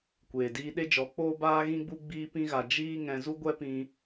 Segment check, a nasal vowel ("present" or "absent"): present